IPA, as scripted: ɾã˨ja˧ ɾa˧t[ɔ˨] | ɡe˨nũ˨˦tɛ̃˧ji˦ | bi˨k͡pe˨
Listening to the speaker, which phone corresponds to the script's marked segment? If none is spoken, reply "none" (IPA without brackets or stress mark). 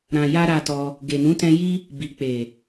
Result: ɔ˧